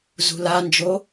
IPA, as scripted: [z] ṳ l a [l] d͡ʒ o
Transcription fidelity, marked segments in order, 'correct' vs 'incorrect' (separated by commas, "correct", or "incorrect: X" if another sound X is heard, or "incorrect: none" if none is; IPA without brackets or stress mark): correct, incorrect: n